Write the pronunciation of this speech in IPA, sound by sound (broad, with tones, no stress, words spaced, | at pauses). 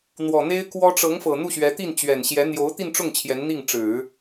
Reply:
n̪wɔ˨˩n̪e˥ɪ̯kwɔ˥ ʈ͡ʂɤ˧˥ŋfɤ˨˩ n̪u˥˩ɕɥɛ˧˥t̪i˥˩nt͡ɕɥɛ˨˩n ɕjɛ˧˥ n̪jo˧˥ʊ̯t̪i˥˧nʈ͡ʂʊ˥˩ŋ t͡ɕʰjɛ˧˥nn̪i˥˩ŋ ʈ͡ʂɻ̩˨˩˦